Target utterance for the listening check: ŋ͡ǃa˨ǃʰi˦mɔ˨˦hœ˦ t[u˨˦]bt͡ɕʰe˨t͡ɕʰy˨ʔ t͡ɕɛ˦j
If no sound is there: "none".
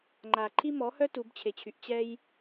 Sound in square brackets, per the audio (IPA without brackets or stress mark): u˨˦